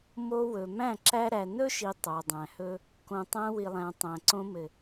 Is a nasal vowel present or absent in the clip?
present